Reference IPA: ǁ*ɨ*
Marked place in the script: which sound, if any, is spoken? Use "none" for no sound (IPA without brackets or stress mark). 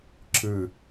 ɨ